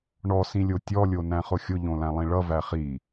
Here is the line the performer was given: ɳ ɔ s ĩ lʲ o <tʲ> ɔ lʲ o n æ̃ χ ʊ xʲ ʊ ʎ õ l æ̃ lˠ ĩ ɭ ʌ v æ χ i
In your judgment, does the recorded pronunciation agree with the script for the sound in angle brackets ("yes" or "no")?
yes